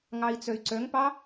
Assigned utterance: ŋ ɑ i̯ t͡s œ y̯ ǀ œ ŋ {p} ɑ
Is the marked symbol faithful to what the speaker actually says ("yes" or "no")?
yes